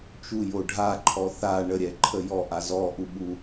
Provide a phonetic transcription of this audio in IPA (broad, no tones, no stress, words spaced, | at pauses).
t͡ʃujo ɖʱaǃʰɔ θa ɳəɾʲɛǃʰə jɔʔa zɔʔuɓu